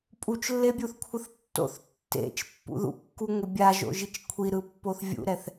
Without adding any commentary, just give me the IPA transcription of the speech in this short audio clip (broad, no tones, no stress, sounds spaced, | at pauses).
pʼ u t͡ʃ lː e bʲ u θ kʷʰ ɯ θ tː o̰ θ tː ḛ t͡ʃ pː ṵ ð ṵ kː u ŋʷ ɛ bʲ a ʒ o̰ ʒ i t͡ʃ kʷʰ i ɾ ɯ pː o θ vʲ ṵ ɾ ɛ θ